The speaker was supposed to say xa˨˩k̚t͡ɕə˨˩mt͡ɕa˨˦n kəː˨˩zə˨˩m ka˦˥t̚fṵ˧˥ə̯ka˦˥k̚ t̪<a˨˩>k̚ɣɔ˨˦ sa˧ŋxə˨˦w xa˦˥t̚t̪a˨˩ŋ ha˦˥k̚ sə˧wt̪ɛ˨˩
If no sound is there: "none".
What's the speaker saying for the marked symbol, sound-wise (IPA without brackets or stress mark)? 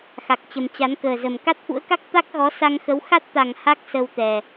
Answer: a˦˥